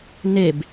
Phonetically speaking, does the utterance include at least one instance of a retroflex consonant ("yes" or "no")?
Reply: no